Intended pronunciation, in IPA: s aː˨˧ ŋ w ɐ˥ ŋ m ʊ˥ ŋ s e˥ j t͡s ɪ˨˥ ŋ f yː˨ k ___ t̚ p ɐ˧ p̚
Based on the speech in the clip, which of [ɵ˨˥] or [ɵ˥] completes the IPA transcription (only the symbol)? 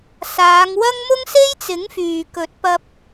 ɵ˨˥